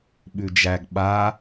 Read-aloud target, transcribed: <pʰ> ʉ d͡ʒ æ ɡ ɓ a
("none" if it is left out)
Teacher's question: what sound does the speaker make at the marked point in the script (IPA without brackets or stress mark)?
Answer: ɓ